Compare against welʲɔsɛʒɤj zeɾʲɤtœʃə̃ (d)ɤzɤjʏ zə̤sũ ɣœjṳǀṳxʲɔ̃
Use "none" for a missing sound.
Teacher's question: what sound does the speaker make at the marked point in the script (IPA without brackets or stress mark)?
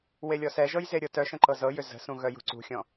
ǃ